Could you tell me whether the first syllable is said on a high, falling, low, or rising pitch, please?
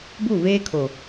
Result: falling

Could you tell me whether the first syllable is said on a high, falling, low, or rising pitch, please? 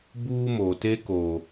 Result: high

